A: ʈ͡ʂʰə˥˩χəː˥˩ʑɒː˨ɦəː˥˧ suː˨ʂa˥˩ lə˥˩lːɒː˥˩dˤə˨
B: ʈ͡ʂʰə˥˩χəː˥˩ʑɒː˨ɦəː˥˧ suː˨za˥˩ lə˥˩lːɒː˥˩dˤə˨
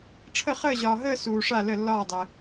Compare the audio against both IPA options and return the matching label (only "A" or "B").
A